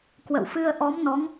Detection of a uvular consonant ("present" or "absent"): absent